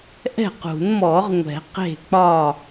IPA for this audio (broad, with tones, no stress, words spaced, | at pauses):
ʔɛ̤˥˩qṳ˨˩˦n mɔ˨˩˦ʁŋʷɛ̤˨˩˦ qe̤˥˩k͡pɒ˥˩